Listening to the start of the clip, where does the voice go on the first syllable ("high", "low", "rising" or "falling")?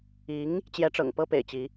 rising